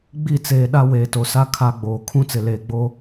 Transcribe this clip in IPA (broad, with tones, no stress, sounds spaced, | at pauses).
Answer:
ɡ͡b i˦˨ t͡s eː˨ ɗ a˦ w eː˨ t o˨ s a˦ kʰ a˦ ɡ͡b oː˨ kʰ ũ˦ t͡s ɪ˨ l eː˨ ɡ͡b o˦